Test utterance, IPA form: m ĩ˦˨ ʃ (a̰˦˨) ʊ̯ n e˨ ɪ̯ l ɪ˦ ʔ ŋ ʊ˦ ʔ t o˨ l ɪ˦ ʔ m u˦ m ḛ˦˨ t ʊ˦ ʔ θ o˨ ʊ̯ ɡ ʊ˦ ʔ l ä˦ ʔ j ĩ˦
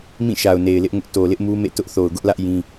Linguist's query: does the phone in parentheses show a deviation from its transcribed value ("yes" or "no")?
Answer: yes